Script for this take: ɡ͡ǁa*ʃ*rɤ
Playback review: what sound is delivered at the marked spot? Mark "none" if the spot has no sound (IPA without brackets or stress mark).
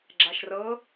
ʃ